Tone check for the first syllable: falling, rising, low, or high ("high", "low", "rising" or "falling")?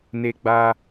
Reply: low